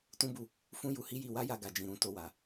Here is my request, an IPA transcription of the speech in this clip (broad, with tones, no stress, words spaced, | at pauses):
tũ˦bu˧ | fũ˦ju˧hi˦ji˧ wa˦ja˧ɡa˨d͡ʒĩ˨ ɾũ˧ to˧wa˨